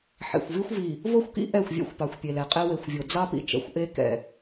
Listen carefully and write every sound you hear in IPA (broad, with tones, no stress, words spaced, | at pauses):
ħḛ˨xʷvi˦xʷ vi˨ | vo˦˨xʷkḭ˦ ʔɛ˦˨xʷvʲɛ̰˦xʷpɑ˨xʷ pʲe˨lɛ˨qʼɛ˦ we˨xʷvʲo˨ d͡zɑ˦pḭ˨ t͡ʃɛ̰˨xʷʔe˦ kɛ̰˨